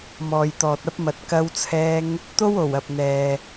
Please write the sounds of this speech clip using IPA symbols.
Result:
m ɔː˨ j t̪ ɔː˨ t̚ ɐ˥ p̚ m ɐ˨˥ t̚ k ɐ˧ w t͡sʰ ɛː˧ ŋ | t̪ o˥ w o˨˩ w ɐ˨ p̚ n̪ ɛː˨

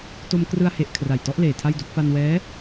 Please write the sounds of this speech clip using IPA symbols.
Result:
t o˧ m k r ɯ˧ a̯ h e˨˩ ʔ kʰ r a˨˩ j t ɔ˦˥ ʔ l eː˨˩ tʰ a˥˩ j d u˥˩ k̚ f a˧ n w ɛː˦˥

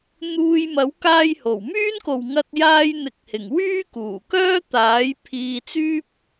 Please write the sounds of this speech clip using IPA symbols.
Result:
n̪ uː˧ j m ɐ˨˥ w k aː˧ j h o˨˩ w m yː˥ n k o˨ w ŋ ɐ˧ t̚ j aː˧ j n̪ ɪ˨ k̚ h ɪ˨˩ ŋ w yː˥ k uː˨˩ k œː˥ t̪ aː˨˥ j pʰ iː˧ t͡s yː˥ p̚

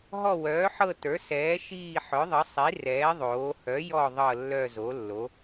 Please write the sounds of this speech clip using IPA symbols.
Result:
ɦ ɔ˦˨ w œː˩˥ ħ ɤ˦˨ t ə˞˩˥ s ɛː˩˥ ʃ iː˦˨ ħ œ˩˥ ðˤ ə˩˥ sˤ i˩˥ r ɛː˩˥ ðˤ oː˩˥ h œ˩˥ j ɔ˦˨ ðˤ ɤ˦˨ lː œ˦˨ z o˩˥ lː o˩˥

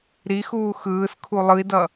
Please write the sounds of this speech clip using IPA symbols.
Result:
ɾ i x uː x ɯː s kʰ u lˠ ɯ i̯ d ʌ

